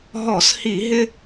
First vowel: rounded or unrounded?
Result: rounded